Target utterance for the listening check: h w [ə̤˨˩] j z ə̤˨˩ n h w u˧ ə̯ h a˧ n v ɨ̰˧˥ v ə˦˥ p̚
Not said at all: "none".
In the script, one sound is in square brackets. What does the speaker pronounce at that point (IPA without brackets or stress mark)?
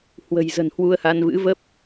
ə̤˨˩